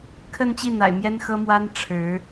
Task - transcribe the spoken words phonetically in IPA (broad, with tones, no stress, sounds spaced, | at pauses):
kʰ ə˥˧ n t͡ɕ i˥˩ n̪ a̰˨˩ ɪ̯ m j ɛ˥ n x ɤ˥ m w a˥ n ʈ͡ʂʰ ɻ̩˧˥